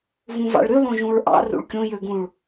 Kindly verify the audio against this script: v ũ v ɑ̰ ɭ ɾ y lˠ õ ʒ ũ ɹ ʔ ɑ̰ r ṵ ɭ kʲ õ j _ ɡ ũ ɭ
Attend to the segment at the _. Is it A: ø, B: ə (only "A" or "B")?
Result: A